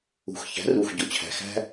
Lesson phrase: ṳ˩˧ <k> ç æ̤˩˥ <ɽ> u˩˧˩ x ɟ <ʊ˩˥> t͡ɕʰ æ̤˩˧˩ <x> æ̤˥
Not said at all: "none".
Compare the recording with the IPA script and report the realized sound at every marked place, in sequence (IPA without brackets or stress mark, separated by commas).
x, r, ʊ˩˥, x